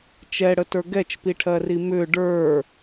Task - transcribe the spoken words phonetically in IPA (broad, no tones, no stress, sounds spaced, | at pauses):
t͡ʃ ɛ ɽ ə t ə˞ ɡ ɛ t͡ʃ p i ʈʰ ɜ r i m ʏ ɖ ə˞